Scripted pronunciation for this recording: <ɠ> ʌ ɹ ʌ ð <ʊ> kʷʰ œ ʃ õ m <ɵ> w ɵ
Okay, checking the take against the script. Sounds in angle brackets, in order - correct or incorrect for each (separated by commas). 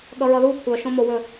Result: correct, incorrect, incorrect